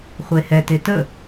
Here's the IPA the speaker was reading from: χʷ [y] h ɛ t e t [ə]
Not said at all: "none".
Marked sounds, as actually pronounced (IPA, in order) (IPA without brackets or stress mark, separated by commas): e, ə